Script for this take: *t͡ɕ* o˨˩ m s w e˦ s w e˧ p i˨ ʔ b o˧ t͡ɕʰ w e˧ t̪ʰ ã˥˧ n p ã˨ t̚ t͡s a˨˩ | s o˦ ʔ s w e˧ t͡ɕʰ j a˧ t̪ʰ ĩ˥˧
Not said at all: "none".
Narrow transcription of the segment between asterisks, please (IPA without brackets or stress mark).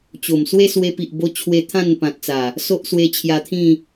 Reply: t͡ɕ